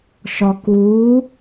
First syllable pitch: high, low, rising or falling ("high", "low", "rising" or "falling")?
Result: low